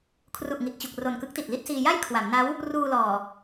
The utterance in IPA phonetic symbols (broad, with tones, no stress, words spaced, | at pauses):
kʰru˨˩ʔ ŋi˨˩t̚ t͡ɕu˨˩k̚ro˨˩nkɯ˦˥k̚ ti˨˩t̚li˥˩t̚siː˧ ja˥˩jkʰwa˩˦mna˦˥w | ruː˧lɔː˨˩